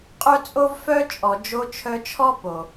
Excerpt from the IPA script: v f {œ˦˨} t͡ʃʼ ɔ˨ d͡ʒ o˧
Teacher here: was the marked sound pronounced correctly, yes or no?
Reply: no